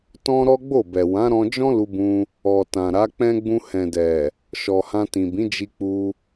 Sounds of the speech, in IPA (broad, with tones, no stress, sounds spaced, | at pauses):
t ɔ̃˦ ɾ ɔ˦ ɡ͡b o˦˨ b ɛ˨ w ã˨˦ ɾ ɔ̃˧ d͡ʒ ɔ̃˦ l u˧ b ũ˧ | ɔ˨ t ã˨ ɾ a˨˦ k͡p ɛ̃˦ ɡ͡b ũ˧ h ɛ̃˨ d ɛ˨ | ʃ ɔ˨ h ã˧ t ĩ˨ b ĩ˨˦ d͡ʒ i˧ k͡p u˧